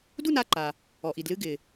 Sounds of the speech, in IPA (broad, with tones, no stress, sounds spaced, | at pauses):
d u˥˨ n a˥˨ ǃ a˩ | ɔ˩ ʔ i˩ d l ɨ˥˨ ɡ ɪ˩